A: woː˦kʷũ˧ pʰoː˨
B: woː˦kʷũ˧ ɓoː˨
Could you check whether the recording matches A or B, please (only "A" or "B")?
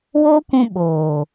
B